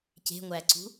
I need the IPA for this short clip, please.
ce̤ŋʷæǀṳ

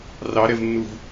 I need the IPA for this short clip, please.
rɑɾɛvnːuv

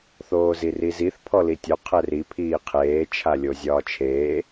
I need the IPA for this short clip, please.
θoːziriziθ pʰɔlitʲo qʰɛri pʰiːqʰeː t͡ʃʰalʲozʲɒːt͡ʃʰeː

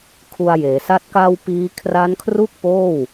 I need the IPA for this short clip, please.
kʰu˧a̯jeː˩˦sa˥˩t̚ ka˧w piː˦˥ kʰra˦˥nkʰru˥˩k̚ poː˥˩w

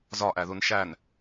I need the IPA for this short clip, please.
zɒʔæðun ʃæn

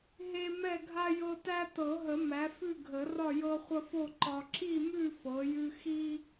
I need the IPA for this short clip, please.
ɦe˦mɛ˥˨ ɡʱa˦ jɤ˦ tæ˦ tɤ˨˩˦ɦə˨˩˦ mæ˩˥fʉ˥˨ ɡʱə˨˩˦ rɒ˥˨jɤ˦χʷə˦fo˥˨ ǃɒ˦ ǁi˥˨mʉ˥˨ fɤ˩˥jʉ˦ xi˦

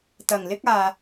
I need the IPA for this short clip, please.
t̪ɐ˨˩ŋlɪ˥k̚aː˨

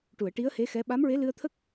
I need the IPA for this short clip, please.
ʈu˨˩˨ə̯ʈi˧˥ə̯he˧˥xɛ˧˥ ɓa˧˥mɹe˧˥lɨ˧ə̯t̪ʰə˦˥k̚

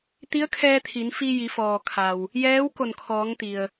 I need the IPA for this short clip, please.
t̪i˧˥ə̯kʰɛː˧ t̪ʰi˩˧nfi˧ ji˩˧fɔː˩kʰa˩w | jɛː˧˥w ko˧˩nkʰɔː˩˧ŋt̪i˩ə̯

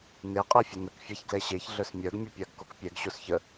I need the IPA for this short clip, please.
ne qʼɛfʲenək fʲaçɡlɛɕeç ɮœsmʲœɡ mʲəpʲaɡkokpʲɛɡ ɕosçə

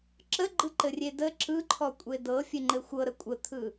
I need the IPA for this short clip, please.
ǁəɡ͡ǃɯǃɘrʲe də ǁɯǃʰɔ kʷʼedɤfʲɘ ŋ͡ǃɘxʷɤɾə kʷʼət̪ʰɯ

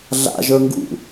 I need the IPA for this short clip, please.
ɮa̰ʒə˞ ŋɡṵ

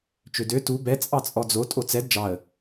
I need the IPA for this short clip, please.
t͡ʃødø tu bɛ t͡sʼɑt͡sʼɔd͡zo tʼot͡sɛd d͡ʒɑə̯

